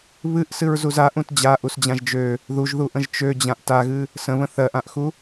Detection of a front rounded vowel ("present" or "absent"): present